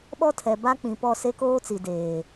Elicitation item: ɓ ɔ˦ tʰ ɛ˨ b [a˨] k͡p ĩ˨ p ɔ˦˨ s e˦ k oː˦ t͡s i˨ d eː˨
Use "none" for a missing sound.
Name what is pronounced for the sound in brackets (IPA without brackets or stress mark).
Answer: a˦